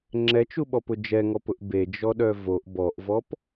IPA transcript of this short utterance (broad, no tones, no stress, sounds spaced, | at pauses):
ŋ͡ǁ ɛ t͡ʃ u ɓ ɔ p ʊ d͡ʒ ɛ ŋ ɔ p ʊ ʔ b e d͡ʒ ɔ ɗ œ v o ʔ b ɔ ʔ v ɔ p